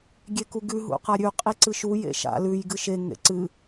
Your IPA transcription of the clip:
ɡʲekuɡʉ ɦṵqaɾʲʉ qʼiǀɨʃu jḛʃa̰ lʉj ɡɨʃe ŋḛǀɨ

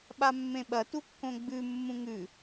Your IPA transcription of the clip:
ɓamːẽɓɐ tukːõɡ͡bʉ mːũŋʉ

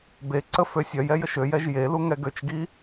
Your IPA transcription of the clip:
beǀə føsʲœjɛj əʃøjɛʒ jelu ŋɛɡøt͡ʃɡi

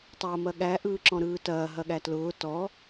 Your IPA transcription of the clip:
tˤɐːmɐɠæ ʔɯːǁɔ̃ɾɯːtɐː ɦɐɠætlʊː tɔ

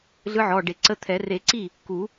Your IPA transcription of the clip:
ɮɯ˧˥ʕɔ˩˧˩ ɖe˨˩˦ǀə˧˥ t̪ʰɛ˨˩˦ re˨˩˦ǀi˥˩ | ku˨˩˦

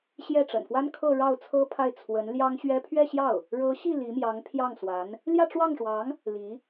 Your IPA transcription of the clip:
ɕjɛ˥˩ʈ͡ʂə̰˨˩nfwa˥n kʰɤ˥˧ɻɑ˥˩ʊ̯t͡sʰɤ˥pʰa˥˩ɪ̯ t͡sʰwə˧˥n ljɑ˥ŋɕɥɛ˥ pʰɥɛ˥˧ɕjɑ˥˩ʊ̯ | ɻɤ˧˥ɕi˥˩ li˧˥mjɑ˧˥ŋpʰjɑ˥˩ŋ swa˧˥n | ljä˥˧ʈ͡ʂwɑ˥˩ŋʂwɑ˧˥ŋ | li˧˥

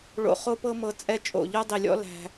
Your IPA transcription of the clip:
ɭo̰˧χo˦pɤ˦ mɤ˧t͡sʼɛ˦ t͡ʃʼo̰˨ ʎo˦dˤi˨lʲɔ̰˦ læ̤˧

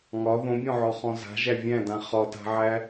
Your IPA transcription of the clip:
ŋɒ ðõbʲɔ̃ʕɔχɔ̃ za̤ʒæ vʲæ̃dã χɒta̤ʕæ

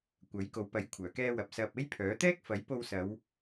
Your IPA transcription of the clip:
kʷɐ˨˥jko˨˥wpɐ˨˥j kʷʰœː˨˩kɛː˧wɐ˨p̚ sɐ˧p̚ e˥jpʰœː˨˥ t̪ɛː˥k̚fɐ˨˥jpo˧wsɐ˨˧w

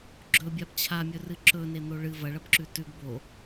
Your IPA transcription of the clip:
ɡ͡ǁɵbʲab t͡ɕʰamʲɵrɨ ǁɵnen̪o ɭɨ vɐɭɐbǁʉ tʉɡ bo

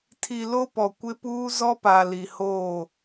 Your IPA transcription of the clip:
tʰi˨ lo˦pɔ˨ kʷɪ˦puː˦ zɔ˦pa˨li˨hoː˦˨

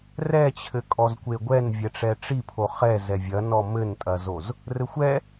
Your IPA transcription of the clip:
rɛt͡ɕʰɘ kʼɔzkʷeɡʷɛn vʲɛʈ͡ʂɛʈ͡ʂipʰo χɛ zɛvʲɐ nɔmɘntʼɐzoz | rɘxʷɛ

